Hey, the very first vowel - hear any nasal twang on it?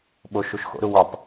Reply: no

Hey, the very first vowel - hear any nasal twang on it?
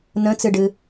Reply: yes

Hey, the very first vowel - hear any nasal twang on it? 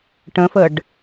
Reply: yes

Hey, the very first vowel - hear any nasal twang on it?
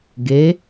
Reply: no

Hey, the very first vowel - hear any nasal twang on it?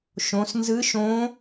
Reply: yes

